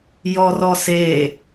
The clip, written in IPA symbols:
j ɔ r ɔ s e

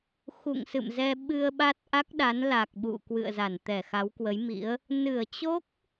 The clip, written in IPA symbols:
x ṵ˧˨ ŋ s ɨ̰˧˨ m z ɛ˧ ɓ ɨ˧ ə̯ ɓ a˦˥ t̚ ʔ a˦˥ k̚ ɗ a˨˦ n l a˨˩ k̚ ɓ ṵ˧˨ k w ɨ̰˧˨ ə̯ z a˧˩ n t̪ ɛ˧˩ x a˨˦ w k w ə˨˦ j m ḭ˧˥ ə̯ | n ɨ˧˩ ə̯ t͡ɕ o˦˥ k̚

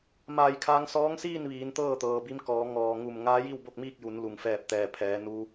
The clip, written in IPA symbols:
m aː˧˩ j kʰ aː˧ ŋ s ɔː˧˥ ŋ s iː˥˨ n ʋ iː˩˧ n t̪ ɤː˥˨ t̪ ɤː˩ b i˧ m k ɔː˩˧ ŋ ɔː˩ ŋ u˧˩ m ŋ aː˧˥ j i˥˨ w b o˥˨ k̚ m iː˥˨ k̚ j u˩˧ n l u˩ ŋ f ɛː˧˩ p̚ t̪ ɛː˩ pʰ ɛː˩˧ n u˧

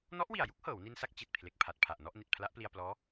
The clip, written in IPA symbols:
n ɔ˦˥ ʔ w i˨˩ a̯ j u˦˥ k̚ h ɤː˩˦ w n i˧ n s a˥˩ k̚ t͡ɕ i˨˩ t̚ pʰ l e˨˩ k̚ pʰ a˨˩ t̚ pʰ a˨˩ ʔ n ɔ˥˩ ʔ n i˨˩ t̚ pʰ l a˦˥ ʔ p l i˧ a̯ p l ɔː˦˥

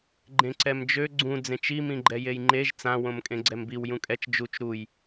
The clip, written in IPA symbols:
ɡ͡ǃ ẽ ǀ ɛ m d͡ʒ ø ɡ͡ǀ ũ d͡z ẽ t͡ʃ i m ĩ ɡ͡ǃ ɛ j e j ŋ͡ǃ e ʒ t͡s ã w õ m kʼ ẽ ɡ͡ǀ ɛ m b i w j ũ kʼ ɛ t͡ʃ d͡ʒ u t͡ʃ ɾ u j

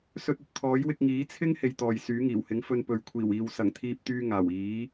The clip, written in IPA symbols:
s ɵ˧ t̚ ɵ˨ t̚ t̪ʰ ɔː˨˥ j w ɪ˧ k̚ ŋ iː˨˥ t͡sʰ ɪ˥ ŋ h e˧ j t̪ ɔː˨ j s yː˨˥ ŋ iː˨˩ w h ɪ˨˥ ŋ f ɵ˧ n p ɵ˨ ɥ kʷʰ iː˨˩ w iː˨ w s ɐ˨˩ ŋ t̪ʰ iː˧ p̚ t̪ yː˧ ŋ aː˨˩ w iː˨˥

